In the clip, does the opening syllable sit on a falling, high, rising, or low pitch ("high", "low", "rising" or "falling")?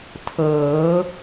rising